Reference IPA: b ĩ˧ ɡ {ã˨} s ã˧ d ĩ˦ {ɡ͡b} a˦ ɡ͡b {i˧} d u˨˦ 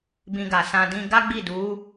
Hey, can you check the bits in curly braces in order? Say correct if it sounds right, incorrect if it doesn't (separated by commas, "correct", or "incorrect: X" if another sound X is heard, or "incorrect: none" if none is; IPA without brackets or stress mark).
incorrect: a˨, incorrect: ɡ, incorrect: i˦˨